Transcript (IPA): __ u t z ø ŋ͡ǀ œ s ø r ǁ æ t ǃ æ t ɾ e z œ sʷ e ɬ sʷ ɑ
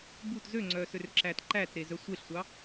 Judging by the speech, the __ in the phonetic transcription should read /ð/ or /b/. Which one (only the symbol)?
b